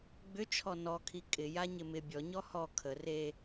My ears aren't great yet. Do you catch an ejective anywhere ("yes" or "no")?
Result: yes